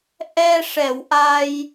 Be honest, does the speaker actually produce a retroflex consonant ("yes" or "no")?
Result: yes